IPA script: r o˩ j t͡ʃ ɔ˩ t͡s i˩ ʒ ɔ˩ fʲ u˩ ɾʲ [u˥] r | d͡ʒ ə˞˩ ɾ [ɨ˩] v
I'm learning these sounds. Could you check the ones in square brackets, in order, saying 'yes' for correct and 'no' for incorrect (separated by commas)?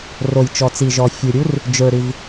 yes, yes